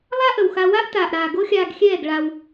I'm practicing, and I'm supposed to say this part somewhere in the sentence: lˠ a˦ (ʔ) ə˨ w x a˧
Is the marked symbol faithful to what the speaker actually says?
yes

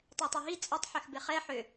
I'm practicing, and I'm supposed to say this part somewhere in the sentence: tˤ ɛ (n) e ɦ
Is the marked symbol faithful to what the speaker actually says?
no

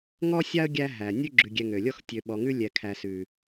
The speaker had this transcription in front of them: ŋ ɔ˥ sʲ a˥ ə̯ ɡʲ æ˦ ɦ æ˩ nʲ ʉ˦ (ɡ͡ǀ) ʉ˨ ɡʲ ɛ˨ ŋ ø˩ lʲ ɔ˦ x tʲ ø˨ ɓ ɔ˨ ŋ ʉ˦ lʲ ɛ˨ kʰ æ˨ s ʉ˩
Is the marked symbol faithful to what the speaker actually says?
no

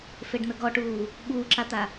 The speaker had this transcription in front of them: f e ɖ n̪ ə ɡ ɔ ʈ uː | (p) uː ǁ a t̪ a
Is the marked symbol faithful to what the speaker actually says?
no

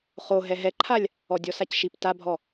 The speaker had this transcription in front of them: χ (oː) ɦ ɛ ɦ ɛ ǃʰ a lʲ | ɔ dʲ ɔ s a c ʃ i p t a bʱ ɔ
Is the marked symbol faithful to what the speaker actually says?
no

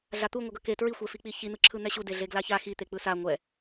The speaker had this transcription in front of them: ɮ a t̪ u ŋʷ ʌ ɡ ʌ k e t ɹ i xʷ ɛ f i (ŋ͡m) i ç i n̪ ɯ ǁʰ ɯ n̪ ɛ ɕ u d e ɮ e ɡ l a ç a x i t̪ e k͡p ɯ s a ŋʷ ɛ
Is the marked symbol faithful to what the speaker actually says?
no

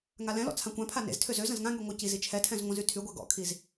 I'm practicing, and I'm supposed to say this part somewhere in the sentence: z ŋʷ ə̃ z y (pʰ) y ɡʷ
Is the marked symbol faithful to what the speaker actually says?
no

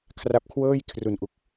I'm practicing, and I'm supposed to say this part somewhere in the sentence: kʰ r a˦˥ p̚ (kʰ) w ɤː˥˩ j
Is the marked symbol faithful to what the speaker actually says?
yes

